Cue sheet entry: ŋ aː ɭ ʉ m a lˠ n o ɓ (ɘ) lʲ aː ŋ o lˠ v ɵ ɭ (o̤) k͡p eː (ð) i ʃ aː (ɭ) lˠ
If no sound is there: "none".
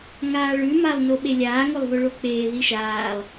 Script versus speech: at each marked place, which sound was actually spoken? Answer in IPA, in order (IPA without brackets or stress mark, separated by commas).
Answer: e, o, ð, none